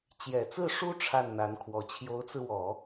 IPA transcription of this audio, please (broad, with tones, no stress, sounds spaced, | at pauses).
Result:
t͡ɕ j ɛ˨˩ t͡s ɹ̩˥˩ ʂ u˥ ʈ͡ʂʰ a˥˩ n n̪ a˧˥ n kʰ w ɔ˧˥ t͡ɕʰ j o˧˥ ʊ̯ t͡s ɹ̩˧ w ɔ˨˩˦